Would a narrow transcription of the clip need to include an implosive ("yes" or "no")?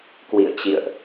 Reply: no